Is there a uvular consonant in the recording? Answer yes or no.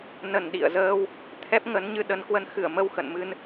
no